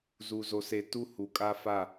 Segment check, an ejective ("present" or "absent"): present